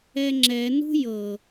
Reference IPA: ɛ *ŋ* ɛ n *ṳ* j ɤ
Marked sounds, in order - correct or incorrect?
incorrect, correct

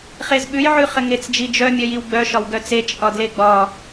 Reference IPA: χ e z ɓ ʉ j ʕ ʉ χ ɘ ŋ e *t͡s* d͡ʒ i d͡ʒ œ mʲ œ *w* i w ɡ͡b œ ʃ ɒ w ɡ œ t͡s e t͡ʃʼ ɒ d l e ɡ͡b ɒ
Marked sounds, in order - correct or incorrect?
correct, incorrect

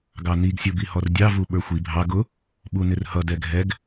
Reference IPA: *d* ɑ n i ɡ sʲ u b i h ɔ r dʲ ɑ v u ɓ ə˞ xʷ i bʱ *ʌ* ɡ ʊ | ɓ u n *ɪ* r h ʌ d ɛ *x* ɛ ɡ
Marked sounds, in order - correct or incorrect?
incorrect, incorrect, correct, incorrect

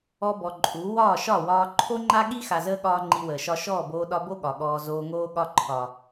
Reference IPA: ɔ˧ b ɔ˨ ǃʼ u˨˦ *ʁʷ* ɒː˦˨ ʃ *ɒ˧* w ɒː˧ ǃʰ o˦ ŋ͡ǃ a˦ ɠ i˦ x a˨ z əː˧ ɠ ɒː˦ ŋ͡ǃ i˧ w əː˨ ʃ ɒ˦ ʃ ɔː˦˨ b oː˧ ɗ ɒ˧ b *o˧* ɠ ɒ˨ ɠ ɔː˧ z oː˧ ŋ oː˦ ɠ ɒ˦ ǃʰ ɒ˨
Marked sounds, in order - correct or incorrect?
incorrect, incorrect, incorrect

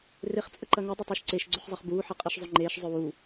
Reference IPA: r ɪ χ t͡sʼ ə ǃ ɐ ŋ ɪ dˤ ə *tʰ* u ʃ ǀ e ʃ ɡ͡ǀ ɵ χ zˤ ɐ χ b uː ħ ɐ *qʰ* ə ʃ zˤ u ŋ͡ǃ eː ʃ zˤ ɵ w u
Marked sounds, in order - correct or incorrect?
incorrect, incorrect

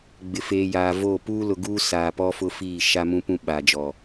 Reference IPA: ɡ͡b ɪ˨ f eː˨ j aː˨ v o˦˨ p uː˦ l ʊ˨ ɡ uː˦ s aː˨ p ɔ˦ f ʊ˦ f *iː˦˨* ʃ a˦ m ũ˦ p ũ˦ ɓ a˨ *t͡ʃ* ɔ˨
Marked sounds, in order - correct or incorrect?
correct, incorrect

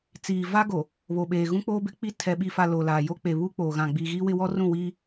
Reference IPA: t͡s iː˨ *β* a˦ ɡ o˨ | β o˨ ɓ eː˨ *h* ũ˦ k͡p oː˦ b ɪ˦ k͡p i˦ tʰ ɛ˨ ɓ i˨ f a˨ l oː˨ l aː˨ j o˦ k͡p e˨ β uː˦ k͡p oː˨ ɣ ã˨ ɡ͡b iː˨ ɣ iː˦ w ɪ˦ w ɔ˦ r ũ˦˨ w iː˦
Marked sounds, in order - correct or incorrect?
incorrect, incorrect

